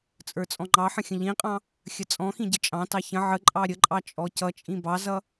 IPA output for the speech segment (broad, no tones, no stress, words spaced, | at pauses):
t͡sʼə˞t͡sʼɔ̃ŋ͡ǃɑħə̃ xʲə̃ʎĩqʼɑ̃ | xʲət͡sʼɔ̃xĩ ɟət͡ʃʼɑ̃tɑ çə̃ ʕəǃʼɑ ɾʲəǃʼɑ t͡ʃʼɔcʌt͡ʃʼĩ bɑzʌ